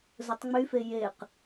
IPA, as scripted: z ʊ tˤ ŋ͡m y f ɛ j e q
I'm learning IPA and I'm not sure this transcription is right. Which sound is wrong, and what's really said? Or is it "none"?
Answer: ɛ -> e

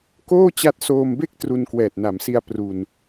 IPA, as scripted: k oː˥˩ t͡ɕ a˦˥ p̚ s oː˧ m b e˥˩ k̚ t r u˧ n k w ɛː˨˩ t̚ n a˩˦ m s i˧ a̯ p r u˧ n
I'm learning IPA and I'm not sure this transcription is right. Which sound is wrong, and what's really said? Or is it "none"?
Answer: p̚ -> t̚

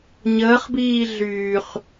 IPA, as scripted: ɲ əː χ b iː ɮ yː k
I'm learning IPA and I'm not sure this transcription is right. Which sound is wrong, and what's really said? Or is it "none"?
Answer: k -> χ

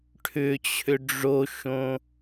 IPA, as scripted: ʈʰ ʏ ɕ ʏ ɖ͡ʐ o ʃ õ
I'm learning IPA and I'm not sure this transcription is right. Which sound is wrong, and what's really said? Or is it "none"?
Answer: ɕ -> t͡ɕʰ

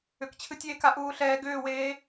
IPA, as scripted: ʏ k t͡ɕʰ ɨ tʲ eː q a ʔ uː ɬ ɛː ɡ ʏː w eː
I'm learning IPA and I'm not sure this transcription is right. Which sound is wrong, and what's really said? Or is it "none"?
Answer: q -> k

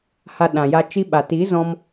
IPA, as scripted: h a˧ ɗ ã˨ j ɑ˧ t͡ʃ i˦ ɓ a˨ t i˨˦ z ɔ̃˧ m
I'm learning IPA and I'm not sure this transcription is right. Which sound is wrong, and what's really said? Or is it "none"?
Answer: ɑ˧ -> a˧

